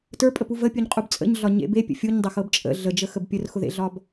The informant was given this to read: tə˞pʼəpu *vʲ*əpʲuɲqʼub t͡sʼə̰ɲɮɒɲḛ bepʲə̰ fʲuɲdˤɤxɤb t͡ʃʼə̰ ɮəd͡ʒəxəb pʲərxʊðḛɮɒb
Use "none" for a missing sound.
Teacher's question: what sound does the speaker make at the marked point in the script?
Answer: v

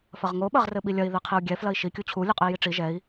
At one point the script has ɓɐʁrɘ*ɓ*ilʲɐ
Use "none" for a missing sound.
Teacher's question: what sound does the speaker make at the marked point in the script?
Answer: ɓ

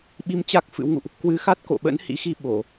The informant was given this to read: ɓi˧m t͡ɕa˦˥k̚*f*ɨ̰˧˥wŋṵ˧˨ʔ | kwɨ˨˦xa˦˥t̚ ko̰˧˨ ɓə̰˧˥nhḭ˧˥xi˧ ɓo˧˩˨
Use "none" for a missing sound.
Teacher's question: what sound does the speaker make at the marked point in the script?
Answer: f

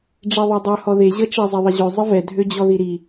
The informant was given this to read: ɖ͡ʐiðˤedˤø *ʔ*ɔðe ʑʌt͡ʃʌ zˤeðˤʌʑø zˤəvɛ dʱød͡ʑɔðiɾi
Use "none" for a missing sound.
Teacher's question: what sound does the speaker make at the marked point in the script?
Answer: h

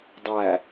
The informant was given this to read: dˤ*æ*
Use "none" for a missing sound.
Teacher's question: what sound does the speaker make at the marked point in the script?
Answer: æ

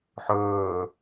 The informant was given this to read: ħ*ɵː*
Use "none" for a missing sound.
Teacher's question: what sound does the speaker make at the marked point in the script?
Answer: ɵː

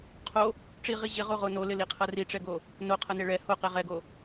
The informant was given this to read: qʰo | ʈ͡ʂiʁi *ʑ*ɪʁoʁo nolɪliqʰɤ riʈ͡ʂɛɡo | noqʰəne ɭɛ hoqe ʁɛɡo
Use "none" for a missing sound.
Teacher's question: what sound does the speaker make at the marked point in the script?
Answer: ʑ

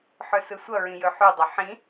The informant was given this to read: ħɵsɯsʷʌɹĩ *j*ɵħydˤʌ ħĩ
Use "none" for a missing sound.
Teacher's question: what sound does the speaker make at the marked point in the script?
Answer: j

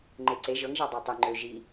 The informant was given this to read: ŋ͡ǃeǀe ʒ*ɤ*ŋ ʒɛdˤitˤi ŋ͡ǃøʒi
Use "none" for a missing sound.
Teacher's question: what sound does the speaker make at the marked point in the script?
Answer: ɤ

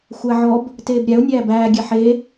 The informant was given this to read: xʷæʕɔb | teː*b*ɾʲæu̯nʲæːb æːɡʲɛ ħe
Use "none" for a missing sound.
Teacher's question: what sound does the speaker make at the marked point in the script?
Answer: b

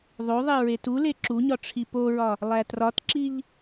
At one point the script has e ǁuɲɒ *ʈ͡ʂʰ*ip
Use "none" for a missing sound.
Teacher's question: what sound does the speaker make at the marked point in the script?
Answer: ʈ͡ʂʰ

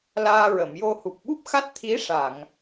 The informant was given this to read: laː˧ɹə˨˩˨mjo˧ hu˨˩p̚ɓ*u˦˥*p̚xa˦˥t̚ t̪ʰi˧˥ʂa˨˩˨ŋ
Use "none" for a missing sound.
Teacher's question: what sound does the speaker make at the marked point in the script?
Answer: u˦˥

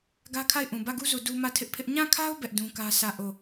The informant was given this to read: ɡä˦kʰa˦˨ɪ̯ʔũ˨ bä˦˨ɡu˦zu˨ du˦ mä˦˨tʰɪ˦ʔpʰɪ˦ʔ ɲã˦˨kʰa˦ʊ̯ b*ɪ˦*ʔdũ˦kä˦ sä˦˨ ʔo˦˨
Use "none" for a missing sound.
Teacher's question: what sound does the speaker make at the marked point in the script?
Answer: ɛ˦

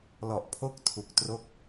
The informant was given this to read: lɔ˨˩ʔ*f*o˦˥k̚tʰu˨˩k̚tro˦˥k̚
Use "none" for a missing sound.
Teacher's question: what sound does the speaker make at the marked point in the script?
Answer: pʰ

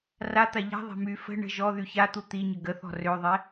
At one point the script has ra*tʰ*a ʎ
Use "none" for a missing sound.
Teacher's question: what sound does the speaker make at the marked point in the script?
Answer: t̪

